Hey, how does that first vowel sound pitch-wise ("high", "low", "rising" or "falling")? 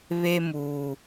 high